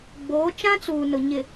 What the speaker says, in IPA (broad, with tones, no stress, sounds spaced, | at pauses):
ɡ͡b oː˨˦ t͡ʃ ã˦ t͡s uː˨ n ʊ˨ ɲ ɪ˨